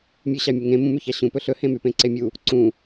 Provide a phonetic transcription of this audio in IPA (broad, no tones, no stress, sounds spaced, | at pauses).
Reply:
mʲ ʉ ɕ ɑ mʲ u ŋ ẽ m ũ m ʉ ç ɑ ɕ ũ p ɵ ɬ ɵ h ẽ m y p ẽ ǀ e mʲ u | ǀ ũ